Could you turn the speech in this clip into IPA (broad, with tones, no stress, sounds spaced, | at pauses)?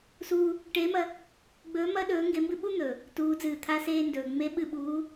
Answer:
s uː˥ | ʈ eː˧˥ m ɐ˧˥ | ɡ͡b ɵː˧˥ m ɐː˥ ɗ ɵː˧˥ ŋ ɡ e˧˥ m b ɨ˥ ɓ u˥ n̪ ɵ˩ | t uː˧˥ d͡z ɨː˧˩ t̪ʰ a˥ s eː˥ n d ɵː˩ ŋ͡m e˧˥ ɓ ɨ˧˩ ɓ uː˧˥